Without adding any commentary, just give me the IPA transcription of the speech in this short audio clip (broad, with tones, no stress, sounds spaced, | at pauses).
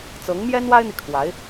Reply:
t͡s ɤ˧˥ ŋ m j ɛ˥ n w a˥ ɪ̯ n̪ i˨ kʰ w a˧˥ ɪ̯